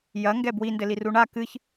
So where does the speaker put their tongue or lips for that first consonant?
palate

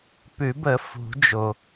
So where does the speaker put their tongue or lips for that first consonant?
lips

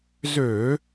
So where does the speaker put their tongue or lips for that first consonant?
tongue tip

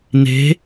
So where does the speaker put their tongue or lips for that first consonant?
tongue tip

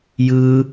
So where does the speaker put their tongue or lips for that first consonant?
palate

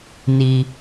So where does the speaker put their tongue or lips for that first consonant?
tongue tip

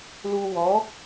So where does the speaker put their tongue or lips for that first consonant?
tongue tip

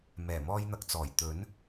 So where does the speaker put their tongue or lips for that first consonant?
lips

